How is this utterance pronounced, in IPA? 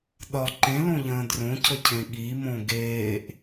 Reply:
ɗ ɒ ǃ ẽ l õ ʎ ə̃ː d r õ cʰ ə cʰ ẽ ɠ i m õ ɡ eː ʔ

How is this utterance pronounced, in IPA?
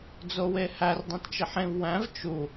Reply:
d͡z o w e h æ r dˤ ĩ t t͡ʃ e ħ ẽ v w æ̃ v t͡ʃ u

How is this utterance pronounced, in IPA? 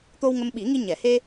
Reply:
t̪ o˧ w ŋ ə˧ m ɓ i˨˩˦ ŋ i˧ ɲ ɛ˨˩˨ h e˧

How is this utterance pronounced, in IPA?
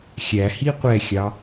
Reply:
xʲ æ h i qʷ ɛ xʲ ɑ

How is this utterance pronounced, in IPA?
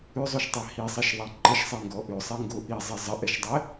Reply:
ʉ zˤ o ʃ tˤ æ h i sˤ ɛ ʃ ðˤ æ ǃ ə ʃ sˤ e ŋ ɡ ɔ ʔ ʉ sˤ e ŋ ɡ o ʔ i zˤ ɛ zˤ ə ʔ ɛ ʃ dˤ ɛ

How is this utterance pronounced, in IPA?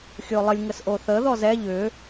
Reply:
xʲ o lˠ ə lʲ ŋ ə s ʔ o θ ə ð ɔ z ɛ ʎ ʏ

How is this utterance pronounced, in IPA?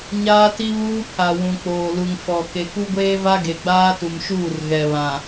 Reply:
ɲ aː˦ t i˦ β uː˦ pʰ a˨ w ũ˨ k͡p oː˨ l u˨ ŋ f ɔ˨ k e˨ k u˦ ɡʷ eː˦ v a˦ ɡ e˨ ɡ͡b aː˦ t u˨ m ʃ uː˦˨ r ɣ ɛ˨ β ã˨

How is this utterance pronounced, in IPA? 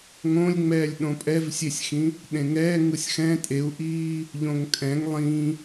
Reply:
ŋ õ lʲ ŋ͡m ɛː lʲ ɗ õ pʼ ɛ v sʲ e sʲ x ĩ | ɗ ẽ ŋ ɛː ŋ ɯ sʲ x ɛ̃ tʼ e u̯ ʔ iː | ʎ õ ŋ kʼ ɛ̃ ŋ lˠ ĩ

